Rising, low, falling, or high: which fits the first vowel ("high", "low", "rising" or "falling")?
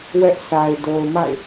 high